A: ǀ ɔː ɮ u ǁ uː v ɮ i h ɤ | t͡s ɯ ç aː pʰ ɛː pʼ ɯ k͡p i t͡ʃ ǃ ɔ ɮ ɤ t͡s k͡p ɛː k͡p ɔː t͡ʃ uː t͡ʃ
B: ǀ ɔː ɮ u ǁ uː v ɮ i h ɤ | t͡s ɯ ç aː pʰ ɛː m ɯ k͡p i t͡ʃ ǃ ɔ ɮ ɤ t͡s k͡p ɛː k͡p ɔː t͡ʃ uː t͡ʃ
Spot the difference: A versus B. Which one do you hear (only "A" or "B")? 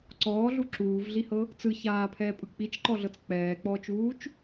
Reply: A